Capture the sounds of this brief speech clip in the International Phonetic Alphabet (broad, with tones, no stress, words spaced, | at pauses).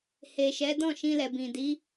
he˨ʃɛ˨˦ dɔ̃˦˨ʃĩ˧lɛ˨bĩ˨ di˨˦